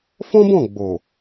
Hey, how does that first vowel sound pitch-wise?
high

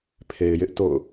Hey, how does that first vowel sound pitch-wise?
low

